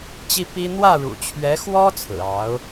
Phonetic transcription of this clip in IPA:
t͡ɕ i˥ p i˥ n̪ w ä˥˩ ɻ ṵ˨˩ t͡ɕʰ ɥ ɛ˧˥ x w ɔ˥ t͡sʰ ɹ̩˨˩ ɑ˧˥ ʊ̯

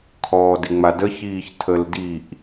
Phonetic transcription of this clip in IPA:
kʰ ɔː d ɪ ŋ͡m a d ə ç iː ç tʰ ə l d i ʔ

